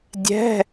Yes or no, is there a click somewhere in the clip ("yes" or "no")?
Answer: no